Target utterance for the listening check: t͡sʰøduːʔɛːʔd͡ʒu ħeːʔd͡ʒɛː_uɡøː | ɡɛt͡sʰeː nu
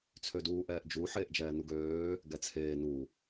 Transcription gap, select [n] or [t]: n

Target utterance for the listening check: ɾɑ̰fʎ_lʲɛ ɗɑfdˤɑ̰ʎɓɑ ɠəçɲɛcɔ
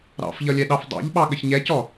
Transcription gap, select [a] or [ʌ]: ʌ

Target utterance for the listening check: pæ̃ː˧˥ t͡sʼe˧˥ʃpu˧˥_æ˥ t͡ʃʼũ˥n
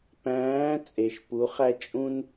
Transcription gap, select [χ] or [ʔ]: χ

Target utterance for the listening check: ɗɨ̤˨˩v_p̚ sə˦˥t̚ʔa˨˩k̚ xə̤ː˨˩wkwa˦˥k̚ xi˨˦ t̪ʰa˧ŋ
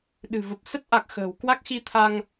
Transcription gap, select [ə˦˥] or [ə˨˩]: ə˨˩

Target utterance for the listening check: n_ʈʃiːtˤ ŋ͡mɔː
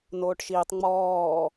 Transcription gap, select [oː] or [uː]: oː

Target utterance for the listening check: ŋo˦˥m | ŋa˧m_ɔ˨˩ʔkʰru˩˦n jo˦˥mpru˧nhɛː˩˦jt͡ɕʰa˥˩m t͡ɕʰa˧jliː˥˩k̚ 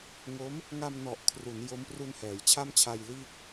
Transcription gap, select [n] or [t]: n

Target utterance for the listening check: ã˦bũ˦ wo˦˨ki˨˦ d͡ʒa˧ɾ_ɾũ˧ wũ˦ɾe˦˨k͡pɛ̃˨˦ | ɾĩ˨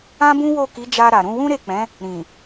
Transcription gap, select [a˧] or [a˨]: a˨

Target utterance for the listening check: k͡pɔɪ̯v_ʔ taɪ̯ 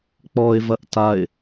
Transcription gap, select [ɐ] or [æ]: ɐ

